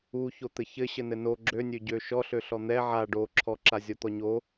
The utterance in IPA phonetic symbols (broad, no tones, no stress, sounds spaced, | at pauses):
u ç o t̪ ɘ ç ɘ ɕ ɘ n ɘ n o ɡ͡ǁ ø nʲ ø ɟ ø ʃ ɔ ɬ ø ɬ ɔ n̪ ɛ ʕ a ɖ o ǁʰ ɔ ǁ a zʲ ɔ t̪ ɔ ɲ o